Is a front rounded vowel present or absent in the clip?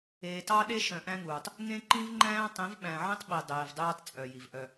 present